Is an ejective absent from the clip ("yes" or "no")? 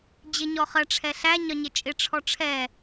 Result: no